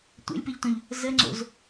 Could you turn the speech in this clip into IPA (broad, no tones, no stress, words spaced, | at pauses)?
tʷḛlʲpeʎtõʎ | zə ŋ͡ǀo̰z